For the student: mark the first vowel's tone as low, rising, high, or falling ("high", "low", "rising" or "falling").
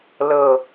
low